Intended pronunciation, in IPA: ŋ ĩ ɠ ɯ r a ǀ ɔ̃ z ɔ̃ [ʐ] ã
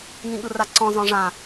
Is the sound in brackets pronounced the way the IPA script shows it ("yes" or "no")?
yes